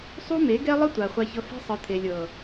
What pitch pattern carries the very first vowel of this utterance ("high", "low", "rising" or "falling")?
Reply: high